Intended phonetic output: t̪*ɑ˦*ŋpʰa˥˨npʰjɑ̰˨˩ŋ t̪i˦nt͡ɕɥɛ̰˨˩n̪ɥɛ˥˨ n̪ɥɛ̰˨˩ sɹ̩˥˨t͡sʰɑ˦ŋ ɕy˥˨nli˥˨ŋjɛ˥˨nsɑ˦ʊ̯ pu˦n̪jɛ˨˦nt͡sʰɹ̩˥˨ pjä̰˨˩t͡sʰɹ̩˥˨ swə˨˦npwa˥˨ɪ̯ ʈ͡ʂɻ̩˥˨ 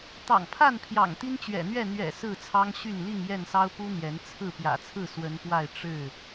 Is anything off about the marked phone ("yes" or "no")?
yes